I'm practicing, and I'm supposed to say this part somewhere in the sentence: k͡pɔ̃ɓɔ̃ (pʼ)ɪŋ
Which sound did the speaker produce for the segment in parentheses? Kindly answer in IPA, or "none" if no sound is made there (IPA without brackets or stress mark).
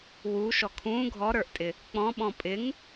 pʼ